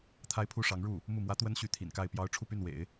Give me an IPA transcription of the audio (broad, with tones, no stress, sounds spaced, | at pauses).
t̪ʰ a˥ ɪ̯ pʰ u˥ ʂ ɑ˧˥ ŋ ɻ u˥˩ | m u˥˩ m w ä˥ t̪ w ə˥ n ɕ y˧˥ t̪ʰ ḭ˨˩ n k a˥˩ ɪ̯ p j ɑ˥ ʊ̯ ʈ͡ʂʰ u˥˧ p y˥˩ n w ḛ˨˩˦ ɪ̯